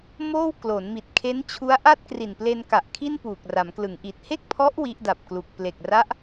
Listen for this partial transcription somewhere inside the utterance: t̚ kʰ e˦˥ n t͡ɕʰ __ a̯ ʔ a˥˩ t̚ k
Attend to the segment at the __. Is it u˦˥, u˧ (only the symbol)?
u˦˥